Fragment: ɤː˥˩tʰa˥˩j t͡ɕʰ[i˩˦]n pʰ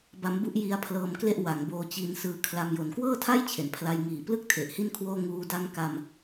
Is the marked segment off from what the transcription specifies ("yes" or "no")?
yes